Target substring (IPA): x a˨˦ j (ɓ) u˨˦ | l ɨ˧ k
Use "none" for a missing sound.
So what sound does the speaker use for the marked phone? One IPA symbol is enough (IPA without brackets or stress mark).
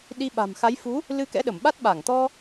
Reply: f